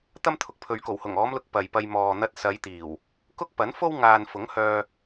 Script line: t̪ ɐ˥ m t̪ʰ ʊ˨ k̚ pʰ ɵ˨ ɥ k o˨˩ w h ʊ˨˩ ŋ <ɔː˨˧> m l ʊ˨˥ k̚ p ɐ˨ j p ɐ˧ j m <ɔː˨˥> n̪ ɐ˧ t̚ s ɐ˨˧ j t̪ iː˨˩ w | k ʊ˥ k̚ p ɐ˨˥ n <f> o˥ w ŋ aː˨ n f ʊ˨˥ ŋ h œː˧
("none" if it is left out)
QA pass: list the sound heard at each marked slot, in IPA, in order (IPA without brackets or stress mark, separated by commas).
ɔː˨˧, ɔː˨, f